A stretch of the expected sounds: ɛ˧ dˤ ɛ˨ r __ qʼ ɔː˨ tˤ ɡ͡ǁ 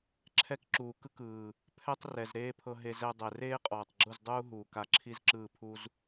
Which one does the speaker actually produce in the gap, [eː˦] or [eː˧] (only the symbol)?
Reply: eː˦